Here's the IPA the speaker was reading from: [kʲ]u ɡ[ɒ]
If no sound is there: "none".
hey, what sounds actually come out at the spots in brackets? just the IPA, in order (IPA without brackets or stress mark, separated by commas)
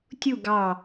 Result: tʲ, ɑ